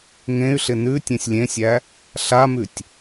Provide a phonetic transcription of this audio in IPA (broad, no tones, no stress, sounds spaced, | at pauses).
ŋ ẽ y̯ ɬ ɪ n ʉ tʲ ẽ sʲ lʲ ẽ sʲ æ | ɬ a m ʉ tʲ